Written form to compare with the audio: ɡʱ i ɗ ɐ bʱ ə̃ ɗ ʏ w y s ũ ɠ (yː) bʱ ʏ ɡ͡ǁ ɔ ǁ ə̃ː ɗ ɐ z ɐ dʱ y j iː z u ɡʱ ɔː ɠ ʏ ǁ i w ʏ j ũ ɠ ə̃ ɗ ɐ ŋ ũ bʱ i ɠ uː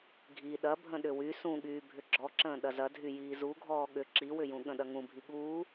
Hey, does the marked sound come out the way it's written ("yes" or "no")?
yes